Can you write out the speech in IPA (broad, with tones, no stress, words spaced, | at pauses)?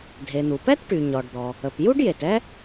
dʱe˩n̪u˩pɛ˥t ʈy˩ɲɔ˩ɖd̪ɔ˩ | ə˩p ju˥ɖje˩tɛ˥